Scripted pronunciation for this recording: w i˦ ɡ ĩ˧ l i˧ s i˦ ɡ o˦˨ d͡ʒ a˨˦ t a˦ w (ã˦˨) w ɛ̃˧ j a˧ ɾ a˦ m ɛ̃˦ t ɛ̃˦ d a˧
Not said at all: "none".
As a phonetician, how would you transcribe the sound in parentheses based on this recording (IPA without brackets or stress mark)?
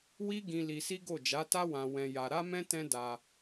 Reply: ã˧